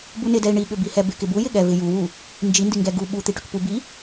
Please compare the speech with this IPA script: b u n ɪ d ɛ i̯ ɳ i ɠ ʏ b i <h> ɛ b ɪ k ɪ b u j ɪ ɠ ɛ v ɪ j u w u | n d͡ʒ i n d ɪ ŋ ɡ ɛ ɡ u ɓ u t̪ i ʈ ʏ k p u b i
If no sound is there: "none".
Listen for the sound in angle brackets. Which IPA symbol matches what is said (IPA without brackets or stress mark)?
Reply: h